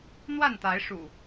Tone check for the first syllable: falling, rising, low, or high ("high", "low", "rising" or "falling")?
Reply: falling